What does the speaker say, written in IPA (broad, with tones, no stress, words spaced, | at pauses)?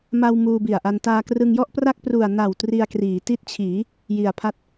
ma˧w muː˧bi˨˩a̯ʔa˧n taː˧krɯ˧ŋjɔ˥˩ʔpra˥˩k̚ pru˨˩a̯na˨˩w tri˧a̯kriː˩˦ti˦˥t̚t͡ɕʰiː˩˦ | ji˨˩a̯pʰa˦˥t̚